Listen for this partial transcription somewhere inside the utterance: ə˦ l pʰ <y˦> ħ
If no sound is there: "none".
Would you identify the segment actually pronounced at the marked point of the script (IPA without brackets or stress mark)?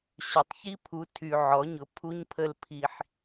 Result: i˦